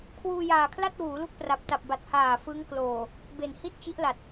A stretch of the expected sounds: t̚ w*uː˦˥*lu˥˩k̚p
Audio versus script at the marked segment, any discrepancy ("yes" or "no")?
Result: yes